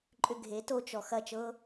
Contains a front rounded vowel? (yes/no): yes